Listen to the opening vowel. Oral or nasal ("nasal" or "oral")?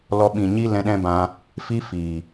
oral